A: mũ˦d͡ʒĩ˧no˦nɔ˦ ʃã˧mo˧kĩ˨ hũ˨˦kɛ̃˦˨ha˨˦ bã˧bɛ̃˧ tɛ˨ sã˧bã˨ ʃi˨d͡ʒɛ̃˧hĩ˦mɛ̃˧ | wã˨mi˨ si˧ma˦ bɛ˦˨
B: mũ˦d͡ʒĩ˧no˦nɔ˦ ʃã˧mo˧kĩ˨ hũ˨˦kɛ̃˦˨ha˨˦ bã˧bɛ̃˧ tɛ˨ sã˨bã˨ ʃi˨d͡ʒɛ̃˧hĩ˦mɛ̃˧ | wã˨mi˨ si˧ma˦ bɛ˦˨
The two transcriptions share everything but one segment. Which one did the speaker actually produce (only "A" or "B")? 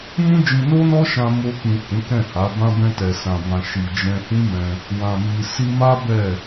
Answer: B